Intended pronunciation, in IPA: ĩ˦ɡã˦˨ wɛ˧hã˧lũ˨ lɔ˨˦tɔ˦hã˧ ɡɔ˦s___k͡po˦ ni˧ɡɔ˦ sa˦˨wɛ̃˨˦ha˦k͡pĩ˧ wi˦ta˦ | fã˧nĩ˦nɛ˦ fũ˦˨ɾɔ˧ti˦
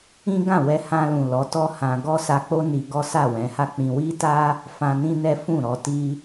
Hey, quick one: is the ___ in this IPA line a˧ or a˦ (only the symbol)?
a˧